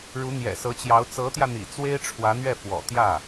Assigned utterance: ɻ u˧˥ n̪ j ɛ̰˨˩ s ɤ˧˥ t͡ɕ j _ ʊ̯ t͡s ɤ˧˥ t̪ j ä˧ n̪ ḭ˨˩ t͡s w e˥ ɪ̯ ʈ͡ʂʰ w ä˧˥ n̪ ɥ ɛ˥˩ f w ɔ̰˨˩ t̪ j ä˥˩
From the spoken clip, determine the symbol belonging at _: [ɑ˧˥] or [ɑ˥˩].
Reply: ɑ˧˥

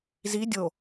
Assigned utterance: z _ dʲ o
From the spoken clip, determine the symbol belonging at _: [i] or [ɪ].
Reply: i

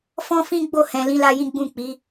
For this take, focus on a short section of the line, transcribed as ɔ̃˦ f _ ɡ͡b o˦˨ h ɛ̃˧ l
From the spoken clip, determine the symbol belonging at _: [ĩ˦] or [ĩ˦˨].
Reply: ĩ˦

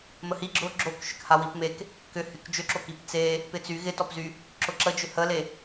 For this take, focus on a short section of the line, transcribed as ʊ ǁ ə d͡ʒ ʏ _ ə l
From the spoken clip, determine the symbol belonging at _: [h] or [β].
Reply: h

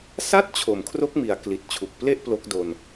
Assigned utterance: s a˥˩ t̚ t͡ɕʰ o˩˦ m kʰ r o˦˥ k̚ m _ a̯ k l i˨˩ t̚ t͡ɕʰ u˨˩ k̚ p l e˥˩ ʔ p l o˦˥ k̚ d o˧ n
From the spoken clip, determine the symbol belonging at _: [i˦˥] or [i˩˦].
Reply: i˩˦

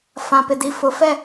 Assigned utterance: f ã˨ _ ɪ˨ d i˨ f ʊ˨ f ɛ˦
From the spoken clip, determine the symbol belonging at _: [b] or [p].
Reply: p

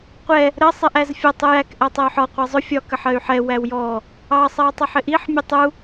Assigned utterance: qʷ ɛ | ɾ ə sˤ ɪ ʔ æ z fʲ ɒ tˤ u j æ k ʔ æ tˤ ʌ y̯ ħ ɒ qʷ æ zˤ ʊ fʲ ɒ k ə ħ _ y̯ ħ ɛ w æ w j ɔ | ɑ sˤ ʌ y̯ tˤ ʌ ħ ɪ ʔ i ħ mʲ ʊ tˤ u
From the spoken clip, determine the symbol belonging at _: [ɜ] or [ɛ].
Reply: ɜ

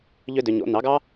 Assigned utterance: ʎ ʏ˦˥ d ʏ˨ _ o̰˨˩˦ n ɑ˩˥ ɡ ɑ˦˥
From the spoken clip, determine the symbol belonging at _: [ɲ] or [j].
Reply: ɲ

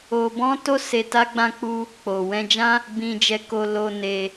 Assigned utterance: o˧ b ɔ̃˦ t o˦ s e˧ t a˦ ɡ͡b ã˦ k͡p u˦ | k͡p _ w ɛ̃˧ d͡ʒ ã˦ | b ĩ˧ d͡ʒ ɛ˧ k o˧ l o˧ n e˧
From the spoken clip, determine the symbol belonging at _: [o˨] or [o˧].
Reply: o˨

